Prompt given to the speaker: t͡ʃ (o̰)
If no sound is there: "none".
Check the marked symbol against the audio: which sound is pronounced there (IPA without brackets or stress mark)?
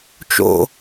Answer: o̰